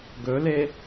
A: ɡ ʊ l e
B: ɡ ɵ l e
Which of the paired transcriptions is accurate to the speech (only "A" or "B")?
B